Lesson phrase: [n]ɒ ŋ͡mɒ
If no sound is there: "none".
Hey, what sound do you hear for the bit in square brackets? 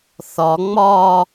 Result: θ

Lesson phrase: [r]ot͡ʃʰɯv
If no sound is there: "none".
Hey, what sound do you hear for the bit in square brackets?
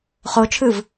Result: χ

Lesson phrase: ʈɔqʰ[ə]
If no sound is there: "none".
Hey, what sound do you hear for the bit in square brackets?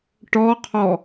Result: ɔ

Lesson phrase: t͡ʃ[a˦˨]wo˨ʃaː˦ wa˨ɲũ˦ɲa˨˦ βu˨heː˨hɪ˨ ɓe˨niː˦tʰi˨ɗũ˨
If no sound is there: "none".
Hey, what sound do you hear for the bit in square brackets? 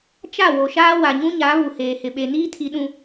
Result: a˦˨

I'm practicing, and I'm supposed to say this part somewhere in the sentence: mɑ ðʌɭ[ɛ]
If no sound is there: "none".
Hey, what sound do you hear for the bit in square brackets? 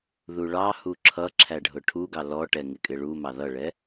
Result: ɛ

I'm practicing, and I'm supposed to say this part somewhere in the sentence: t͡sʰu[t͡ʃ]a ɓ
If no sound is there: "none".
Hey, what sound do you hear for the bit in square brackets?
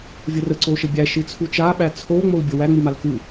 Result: t͡ʃ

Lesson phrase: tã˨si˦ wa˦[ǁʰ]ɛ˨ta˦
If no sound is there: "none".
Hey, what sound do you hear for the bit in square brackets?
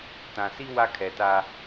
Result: kʰ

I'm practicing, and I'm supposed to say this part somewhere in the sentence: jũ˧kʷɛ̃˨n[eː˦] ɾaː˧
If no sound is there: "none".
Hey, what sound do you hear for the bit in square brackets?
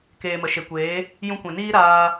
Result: iː˦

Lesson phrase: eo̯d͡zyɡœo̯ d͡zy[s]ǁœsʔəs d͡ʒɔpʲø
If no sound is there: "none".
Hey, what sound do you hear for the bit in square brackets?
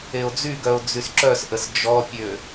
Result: s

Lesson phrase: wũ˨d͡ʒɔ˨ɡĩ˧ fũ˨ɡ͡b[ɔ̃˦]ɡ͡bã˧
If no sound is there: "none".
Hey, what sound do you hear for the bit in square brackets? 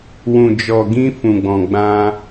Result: ɔ̃˨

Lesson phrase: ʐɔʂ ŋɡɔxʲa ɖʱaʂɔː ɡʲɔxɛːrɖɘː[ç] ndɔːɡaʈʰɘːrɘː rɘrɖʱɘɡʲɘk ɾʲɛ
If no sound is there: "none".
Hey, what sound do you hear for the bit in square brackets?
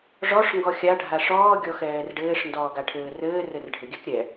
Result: ʂ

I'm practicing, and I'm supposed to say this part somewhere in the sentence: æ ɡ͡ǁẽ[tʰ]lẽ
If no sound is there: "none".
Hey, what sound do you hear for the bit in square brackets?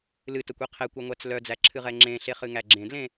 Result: d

